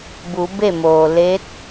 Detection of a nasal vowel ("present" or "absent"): absent